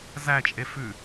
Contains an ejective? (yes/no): yes